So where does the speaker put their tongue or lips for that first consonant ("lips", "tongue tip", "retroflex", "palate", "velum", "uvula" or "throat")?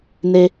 tongue tip